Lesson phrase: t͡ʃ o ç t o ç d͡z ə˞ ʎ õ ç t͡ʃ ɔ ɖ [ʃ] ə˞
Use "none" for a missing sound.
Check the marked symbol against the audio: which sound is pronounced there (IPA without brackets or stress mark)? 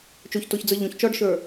ʃ